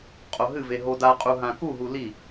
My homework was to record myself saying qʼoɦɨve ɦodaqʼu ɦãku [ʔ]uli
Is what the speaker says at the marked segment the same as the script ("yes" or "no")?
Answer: no